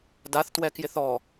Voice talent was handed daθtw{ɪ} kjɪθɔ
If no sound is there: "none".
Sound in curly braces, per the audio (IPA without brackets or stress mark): ɛ